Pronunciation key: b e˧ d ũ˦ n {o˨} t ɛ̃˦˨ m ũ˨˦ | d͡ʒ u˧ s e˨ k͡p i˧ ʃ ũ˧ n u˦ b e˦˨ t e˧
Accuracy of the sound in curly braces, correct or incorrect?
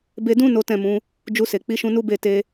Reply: incorrect